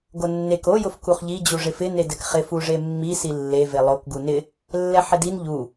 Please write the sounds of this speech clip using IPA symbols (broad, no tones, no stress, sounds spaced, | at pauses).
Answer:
ɡ o nː e k o j ʊ f k u χ ʎ i d͡ʑ u ʐ ɪ f ɪ n e d ɛ k χ ɪ f u ʐ e mː i s i lː e v e lˠ o k ɡ u n ɪ | lː ɛ ħ ɪ d i n ʎ u